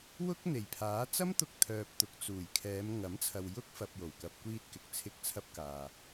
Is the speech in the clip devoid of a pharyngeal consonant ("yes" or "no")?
yes